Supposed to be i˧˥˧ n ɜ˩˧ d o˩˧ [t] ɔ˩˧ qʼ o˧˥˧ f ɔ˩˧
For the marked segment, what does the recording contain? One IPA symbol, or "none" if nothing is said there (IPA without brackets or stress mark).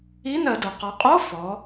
q